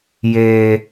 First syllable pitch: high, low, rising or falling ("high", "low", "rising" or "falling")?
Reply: high